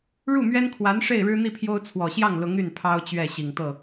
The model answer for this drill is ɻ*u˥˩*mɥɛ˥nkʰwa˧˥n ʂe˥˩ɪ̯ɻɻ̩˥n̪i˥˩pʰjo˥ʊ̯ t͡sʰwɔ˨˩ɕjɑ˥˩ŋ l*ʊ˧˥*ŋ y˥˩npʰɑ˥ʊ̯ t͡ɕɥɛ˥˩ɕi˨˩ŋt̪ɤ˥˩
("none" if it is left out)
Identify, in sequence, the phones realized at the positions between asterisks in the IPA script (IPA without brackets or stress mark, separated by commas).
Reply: u˥˩, ʊ˧˥